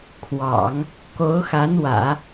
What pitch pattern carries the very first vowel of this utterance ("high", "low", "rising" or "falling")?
low